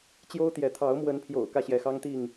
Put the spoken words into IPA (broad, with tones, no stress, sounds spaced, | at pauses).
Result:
t͡ɕ j o˦ ʊ̯ t̪ j ɛ˨˦ t̪ʰ ɑ˨˦ ʊ̯ m w ə˨˦ n pʰ j o̰˨˩ ʊ̯ k ä˥˨ ɕ j ɛ˨˦ x ɑ˦ ŋ t̪ i˥˨ ŋ